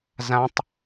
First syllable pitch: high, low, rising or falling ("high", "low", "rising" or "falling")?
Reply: high